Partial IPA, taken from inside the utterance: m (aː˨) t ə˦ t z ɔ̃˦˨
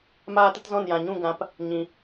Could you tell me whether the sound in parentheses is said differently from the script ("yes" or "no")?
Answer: yes